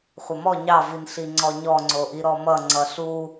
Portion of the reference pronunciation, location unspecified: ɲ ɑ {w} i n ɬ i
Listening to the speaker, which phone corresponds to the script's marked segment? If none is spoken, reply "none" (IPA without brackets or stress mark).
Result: v